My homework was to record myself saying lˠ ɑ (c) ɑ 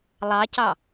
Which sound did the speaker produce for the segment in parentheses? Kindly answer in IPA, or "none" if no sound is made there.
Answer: c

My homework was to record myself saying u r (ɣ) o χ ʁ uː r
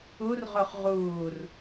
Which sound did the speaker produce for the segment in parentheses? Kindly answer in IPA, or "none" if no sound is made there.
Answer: ʁ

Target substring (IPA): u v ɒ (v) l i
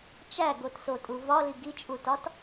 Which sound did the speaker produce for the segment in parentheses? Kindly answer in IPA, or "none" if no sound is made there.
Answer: none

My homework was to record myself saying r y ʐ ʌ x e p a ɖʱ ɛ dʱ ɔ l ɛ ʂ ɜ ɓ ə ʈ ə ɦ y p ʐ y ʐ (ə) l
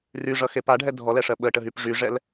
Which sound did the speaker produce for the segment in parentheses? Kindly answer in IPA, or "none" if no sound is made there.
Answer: ɛ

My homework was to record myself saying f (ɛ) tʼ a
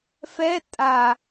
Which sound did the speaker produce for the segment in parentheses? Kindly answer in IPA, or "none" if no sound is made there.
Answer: ɛ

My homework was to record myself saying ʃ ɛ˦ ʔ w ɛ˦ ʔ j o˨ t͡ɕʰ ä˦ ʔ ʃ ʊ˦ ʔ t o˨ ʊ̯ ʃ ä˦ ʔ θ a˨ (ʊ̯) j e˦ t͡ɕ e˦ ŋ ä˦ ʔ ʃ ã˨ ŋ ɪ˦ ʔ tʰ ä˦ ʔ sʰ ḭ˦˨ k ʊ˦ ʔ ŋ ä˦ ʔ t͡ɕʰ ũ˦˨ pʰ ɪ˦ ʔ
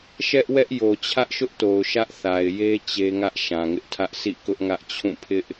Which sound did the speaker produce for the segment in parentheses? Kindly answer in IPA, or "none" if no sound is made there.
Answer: ɪ̯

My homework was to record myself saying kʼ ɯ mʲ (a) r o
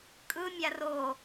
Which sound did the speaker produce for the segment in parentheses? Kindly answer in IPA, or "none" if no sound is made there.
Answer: a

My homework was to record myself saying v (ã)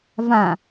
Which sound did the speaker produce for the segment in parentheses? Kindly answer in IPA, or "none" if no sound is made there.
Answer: ã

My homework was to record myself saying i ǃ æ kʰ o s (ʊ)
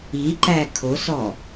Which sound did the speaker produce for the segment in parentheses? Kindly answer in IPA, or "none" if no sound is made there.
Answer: ɔ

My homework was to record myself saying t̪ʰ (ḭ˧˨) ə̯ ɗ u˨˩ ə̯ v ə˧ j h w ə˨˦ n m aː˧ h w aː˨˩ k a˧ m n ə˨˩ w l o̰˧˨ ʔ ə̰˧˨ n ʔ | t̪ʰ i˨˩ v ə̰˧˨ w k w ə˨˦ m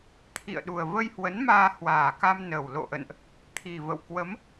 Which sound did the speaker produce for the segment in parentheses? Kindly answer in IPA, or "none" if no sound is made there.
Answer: ḭ˧˨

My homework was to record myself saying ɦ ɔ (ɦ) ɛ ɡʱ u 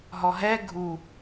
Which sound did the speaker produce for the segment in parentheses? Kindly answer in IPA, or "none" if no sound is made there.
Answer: ɦ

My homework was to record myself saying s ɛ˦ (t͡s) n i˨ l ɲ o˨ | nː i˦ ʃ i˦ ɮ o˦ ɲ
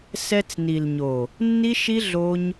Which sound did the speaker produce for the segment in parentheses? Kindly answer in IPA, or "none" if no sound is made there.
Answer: t͡s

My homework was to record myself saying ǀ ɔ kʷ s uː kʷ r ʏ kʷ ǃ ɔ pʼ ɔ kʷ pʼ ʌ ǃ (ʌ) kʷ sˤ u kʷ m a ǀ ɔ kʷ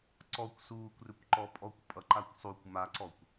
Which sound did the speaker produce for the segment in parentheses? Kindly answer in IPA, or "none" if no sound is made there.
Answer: a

